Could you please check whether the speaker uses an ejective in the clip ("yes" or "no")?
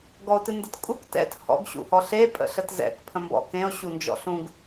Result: yes